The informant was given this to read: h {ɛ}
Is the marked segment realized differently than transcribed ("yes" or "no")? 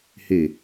yes